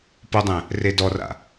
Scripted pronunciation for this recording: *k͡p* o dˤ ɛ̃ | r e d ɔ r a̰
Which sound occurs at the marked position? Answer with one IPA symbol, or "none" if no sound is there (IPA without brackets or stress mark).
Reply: p